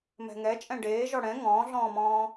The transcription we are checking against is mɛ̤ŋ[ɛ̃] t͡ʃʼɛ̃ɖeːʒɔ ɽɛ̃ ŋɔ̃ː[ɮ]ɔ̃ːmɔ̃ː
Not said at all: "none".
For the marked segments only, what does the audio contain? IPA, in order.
ɛ, ɮ

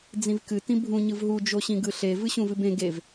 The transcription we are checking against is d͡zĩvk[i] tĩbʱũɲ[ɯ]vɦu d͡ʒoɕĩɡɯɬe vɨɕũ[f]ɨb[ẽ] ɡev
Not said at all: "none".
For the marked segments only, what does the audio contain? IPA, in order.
ɨ, ɯ, v, ẽ

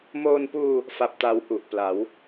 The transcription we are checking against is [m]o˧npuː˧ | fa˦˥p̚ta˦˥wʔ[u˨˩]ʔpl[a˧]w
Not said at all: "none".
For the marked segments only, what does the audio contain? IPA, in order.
m, u˨˩, a˩˦

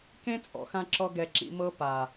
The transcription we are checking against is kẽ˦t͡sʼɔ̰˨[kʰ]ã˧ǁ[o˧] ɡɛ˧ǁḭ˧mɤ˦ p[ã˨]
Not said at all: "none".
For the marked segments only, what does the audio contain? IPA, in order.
x, ɔ˧, a˨

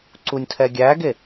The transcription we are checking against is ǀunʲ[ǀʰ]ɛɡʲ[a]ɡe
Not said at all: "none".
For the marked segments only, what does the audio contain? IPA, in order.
tʰ, æ

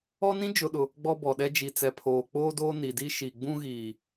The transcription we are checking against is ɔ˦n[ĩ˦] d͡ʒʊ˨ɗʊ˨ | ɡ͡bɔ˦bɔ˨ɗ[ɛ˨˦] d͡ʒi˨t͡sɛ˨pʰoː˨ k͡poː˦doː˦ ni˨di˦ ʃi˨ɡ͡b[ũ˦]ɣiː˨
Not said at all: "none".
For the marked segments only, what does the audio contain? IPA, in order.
ĩ˦, ɛ˦, ũ˦

